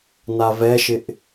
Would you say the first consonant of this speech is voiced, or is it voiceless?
voiced